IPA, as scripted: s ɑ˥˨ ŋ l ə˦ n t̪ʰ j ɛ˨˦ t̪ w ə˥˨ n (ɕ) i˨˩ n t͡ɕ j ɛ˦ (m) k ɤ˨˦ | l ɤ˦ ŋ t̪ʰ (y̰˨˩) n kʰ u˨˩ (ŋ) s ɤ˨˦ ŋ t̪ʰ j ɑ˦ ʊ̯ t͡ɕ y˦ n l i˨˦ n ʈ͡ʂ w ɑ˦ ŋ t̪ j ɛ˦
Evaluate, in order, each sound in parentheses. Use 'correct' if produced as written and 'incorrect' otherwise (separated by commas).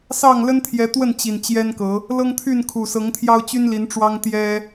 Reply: incorrect, incorrect, incorrect, incorrect